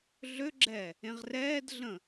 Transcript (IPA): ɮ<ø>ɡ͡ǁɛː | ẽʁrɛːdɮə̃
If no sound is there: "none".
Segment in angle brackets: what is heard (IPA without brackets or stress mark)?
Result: ø